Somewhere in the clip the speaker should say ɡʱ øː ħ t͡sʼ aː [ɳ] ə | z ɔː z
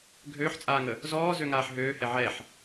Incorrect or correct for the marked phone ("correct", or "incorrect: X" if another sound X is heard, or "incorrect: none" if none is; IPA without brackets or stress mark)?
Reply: incorrect: ŋ